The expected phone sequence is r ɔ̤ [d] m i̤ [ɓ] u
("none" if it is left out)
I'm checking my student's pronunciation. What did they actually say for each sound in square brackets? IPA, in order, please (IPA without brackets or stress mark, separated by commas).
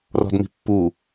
d, pː